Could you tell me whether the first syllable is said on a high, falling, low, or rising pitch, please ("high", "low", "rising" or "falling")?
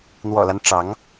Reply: low